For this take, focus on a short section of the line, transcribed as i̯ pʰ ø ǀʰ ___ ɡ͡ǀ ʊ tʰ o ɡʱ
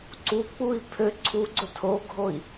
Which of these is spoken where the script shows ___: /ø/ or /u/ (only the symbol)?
u